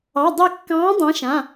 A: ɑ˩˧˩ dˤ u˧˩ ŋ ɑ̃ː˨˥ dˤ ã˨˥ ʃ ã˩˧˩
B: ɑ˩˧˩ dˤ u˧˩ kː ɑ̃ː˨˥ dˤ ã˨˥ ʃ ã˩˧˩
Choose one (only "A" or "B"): B